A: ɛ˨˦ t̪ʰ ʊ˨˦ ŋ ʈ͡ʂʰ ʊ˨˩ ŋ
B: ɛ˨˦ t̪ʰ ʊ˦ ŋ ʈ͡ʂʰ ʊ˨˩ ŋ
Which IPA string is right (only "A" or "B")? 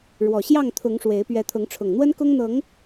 A